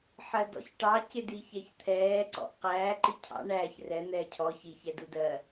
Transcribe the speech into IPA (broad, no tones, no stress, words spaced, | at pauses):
ħɜdɔ̰çʈɑ cɪdiçɛçt̪ʰɛː ǀɔ̰ʔqæː ǃicʰɑ̰ ɳæːç rɛ n̪ɛːcʰɔ çi çɛdudɜ